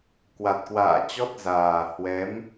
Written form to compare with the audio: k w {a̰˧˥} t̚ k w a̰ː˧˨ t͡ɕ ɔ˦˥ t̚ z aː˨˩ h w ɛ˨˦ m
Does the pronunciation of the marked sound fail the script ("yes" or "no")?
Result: yes